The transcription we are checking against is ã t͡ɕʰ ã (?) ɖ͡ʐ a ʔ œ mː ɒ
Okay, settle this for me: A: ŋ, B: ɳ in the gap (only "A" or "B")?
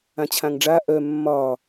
A